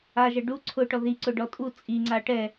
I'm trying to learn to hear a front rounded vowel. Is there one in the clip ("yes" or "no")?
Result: no